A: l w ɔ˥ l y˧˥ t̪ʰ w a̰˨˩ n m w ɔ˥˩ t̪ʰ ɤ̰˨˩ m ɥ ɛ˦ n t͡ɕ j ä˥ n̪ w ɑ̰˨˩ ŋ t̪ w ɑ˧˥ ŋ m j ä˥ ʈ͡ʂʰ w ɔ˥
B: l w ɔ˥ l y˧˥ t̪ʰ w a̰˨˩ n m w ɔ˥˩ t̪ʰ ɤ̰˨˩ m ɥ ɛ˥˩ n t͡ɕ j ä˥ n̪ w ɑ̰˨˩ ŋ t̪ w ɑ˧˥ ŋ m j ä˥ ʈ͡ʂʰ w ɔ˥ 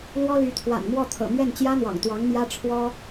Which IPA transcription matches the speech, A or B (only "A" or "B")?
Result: B